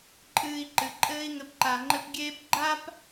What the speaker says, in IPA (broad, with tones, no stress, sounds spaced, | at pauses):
ǃʼ ɨː˧ i̯ ǃ ɨ˨ ǃʼ ɘː˦ i̯ ŋ ɘ˧ p ǃ a˨ ŋ͡ǃ ɘ˧ p ɡʲ eː˦ p ɡ͡ǃ a˦ p